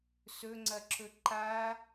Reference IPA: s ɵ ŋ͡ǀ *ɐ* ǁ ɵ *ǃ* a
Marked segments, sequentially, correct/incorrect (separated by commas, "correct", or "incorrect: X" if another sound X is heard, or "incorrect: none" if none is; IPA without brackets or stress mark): correct, correct